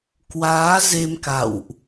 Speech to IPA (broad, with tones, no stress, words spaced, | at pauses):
kwaː˨˦ ze˧m ka̰˧˨wʔ